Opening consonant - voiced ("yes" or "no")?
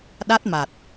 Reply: yes